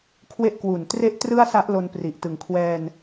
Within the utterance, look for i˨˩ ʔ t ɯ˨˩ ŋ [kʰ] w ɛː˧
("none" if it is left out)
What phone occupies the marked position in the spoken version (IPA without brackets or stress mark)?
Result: kʰ